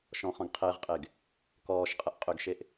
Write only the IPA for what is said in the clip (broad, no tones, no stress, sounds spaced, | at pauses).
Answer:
ʃ ɔ̃ χ ɔ̃ ɡ qʰ e ʁ qʼ e ɡ | k ɔː ʃ qʼ ə ʔ qʼ ʏ ɡ ʃ e ʔ